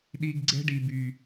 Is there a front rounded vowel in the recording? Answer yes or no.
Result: yes